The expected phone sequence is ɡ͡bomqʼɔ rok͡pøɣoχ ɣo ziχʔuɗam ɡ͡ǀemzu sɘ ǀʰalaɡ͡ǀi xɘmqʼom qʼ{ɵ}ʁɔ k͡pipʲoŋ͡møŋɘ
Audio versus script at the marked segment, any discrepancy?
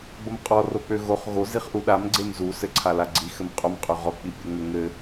yes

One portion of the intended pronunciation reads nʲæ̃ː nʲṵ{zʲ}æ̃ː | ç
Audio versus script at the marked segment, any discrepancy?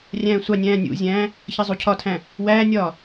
no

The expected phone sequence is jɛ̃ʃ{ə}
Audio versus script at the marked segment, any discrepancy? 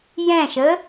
no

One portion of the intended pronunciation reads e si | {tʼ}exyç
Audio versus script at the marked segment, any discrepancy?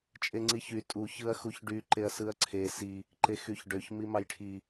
yes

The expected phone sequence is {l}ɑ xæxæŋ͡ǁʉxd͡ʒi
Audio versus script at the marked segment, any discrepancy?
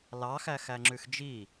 no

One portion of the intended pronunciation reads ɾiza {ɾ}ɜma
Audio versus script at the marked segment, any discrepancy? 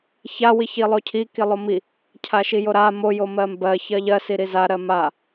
no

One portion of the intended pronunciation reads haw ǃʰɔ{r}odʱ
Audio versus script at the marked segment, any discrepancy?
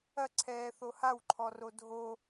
no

